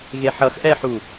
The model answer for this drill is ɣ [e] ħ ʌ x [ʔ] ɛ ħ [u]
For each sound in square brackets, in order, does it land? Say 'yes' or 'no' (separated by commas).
yes, yes, yes